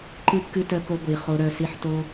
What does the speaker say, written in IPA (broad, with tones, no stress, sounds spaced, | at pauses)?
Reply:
ǃ ɨ˧ kː ɨ˧ t œ˧ k o˧ ɡʷ i˨ χ o˦ ɾ œ˧ s i˧ ħ t o˦